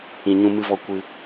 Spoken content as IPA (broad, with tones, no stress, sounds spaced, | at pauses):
ĩ˧ ɲ ũ˧ m ɨ˧ v ɔ˧ kʷ ɨ˧